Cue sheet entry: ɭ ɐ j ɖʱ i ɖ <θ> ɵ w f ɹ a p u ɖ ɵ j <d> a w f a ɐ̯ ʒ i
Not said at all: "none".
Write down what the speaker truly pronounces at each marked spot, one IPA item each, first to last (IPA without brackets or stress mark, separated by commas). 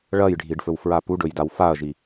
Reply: f, d